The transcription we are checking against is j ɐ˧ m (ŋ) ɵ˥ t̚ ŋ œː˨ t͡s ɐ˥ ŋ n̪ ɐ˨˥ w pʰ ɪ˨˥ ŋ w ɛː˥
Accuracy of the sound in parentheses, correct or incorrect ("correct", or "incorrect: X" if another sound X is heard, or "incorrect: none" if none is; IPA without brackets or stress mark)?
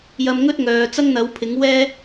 correct